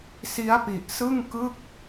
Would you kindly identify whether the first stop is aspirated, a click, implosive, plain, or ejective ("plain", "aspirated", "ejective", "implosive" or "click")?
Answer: plain